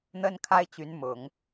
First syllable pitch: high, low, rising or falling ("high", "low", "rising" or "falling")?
high